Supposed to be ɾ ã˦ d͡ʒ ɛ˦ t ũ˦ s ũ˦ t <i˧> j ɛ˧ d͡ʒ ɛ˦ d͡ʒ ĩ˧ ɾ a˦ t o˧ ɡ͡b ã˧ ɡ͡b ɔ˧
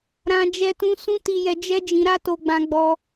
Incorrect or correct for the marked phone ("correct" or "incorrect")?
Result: correct